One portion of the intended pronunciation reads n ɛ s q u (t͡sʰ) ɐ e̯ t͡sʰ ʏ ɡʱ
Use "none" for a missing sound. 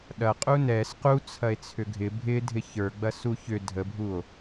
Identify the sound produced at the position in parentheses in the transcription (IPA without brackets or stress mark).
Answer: t͡sʰ